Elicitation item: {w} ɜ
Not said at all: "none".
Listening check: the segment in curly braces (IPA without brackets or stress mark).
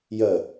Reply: j